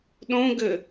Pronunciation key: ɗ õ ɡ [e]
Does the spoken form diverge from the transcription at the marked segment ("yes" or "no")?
yes